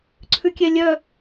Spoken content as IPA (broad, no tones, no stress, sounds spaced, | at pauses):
ǀʰ ʉ kʲ ɛ lʲ œ